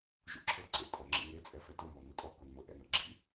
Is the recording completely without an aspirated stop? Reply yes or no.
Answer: no